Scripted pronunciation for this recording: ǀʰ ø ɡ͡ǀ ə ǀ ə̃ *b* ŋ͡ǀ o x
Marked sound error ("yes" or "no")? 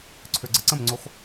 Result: yes